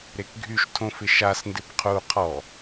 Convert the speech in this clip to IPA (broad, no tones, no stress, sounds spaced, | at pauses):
ɾ e k ɡʱ y ʃ tʰ õ f ɪ ʃ a s n d ɪ b qʰ u qʰ ɔ